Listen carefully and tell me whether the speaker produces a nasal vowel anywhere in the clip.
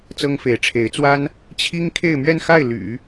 no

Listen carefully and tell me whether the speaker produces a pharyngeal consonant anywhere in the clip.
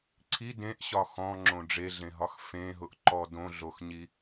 no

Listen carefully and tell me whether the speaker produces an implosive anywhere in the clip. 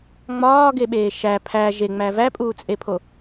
yes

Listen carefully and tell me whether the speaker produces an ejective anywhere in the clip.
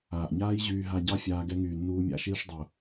no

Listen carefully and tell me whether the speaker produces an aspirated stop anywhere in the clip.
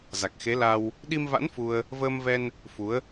no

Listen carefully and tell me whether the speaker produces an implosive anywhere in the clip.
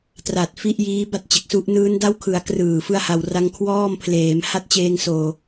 no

